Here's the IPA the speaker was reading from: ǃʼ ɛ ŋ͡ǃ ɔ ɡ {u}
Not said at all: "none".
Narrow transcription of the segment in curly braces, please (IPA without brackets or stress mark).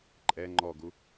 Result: u